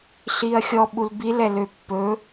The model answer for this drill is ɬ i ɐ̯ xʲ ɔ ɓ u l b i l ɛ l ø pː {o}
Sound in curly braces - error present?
yes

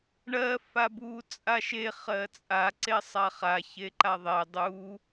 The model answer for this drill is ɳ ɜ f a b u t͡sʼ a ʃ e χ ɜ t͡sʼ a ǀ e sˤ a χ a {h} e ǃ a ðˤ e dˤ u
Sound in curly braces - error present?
yes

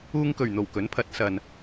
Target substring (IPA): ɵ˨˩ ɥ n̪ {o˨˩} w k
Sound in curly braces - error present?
no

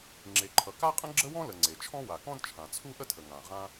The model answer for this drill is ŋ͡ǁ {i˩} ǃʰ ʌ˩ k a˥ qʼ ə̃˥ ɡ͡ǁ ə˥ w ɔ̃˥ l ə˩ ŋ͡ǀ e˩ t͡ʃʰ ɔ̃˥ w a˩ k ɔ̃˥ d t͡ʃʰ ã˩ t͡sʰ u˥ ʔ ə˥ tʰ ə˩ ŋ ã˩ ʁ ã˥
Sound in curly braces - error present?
yes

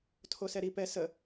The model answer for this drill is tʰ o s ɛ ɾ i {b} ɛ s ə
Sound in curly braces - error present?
yes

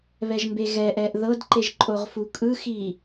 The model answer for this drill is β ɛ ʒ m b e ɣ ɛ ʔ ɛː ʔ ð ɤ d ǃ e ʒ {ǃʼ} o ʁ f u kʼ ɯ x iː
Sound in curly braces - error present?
no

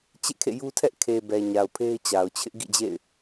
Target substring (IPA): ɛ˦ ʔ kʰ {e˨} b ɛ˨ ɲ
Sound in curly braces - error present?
no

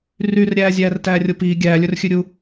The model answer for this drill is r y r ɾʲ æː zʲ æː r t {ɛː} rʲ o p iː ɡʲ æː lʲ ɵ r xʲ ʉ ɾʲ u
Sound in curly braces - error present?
yes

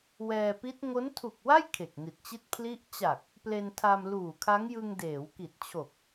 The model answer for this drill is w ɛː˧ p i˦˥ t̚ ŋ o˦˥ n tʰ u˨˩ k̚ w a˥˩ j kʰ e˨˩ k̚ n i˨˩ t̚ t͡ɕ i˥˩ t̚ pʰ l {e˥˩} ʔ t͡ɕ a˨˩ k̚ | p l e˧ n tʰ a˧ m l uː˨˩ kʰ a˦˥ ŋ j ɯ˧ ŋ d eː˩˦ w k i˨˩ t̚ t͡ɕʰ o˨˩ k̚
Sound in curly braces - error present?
yes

